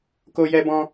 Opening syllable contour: high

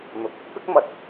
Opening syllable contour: rising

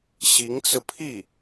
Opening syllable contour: rising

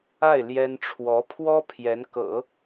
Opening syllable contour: falling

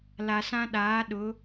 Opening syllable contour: low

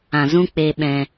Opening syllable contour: low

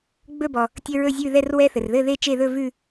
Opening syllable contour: falling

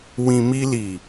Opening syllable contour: low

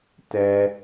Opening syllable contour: high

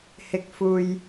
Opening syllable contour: low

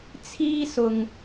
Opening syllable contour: high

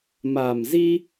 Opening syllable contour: low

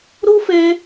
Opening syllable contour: high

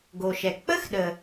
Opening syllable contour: low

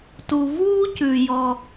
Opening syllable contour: low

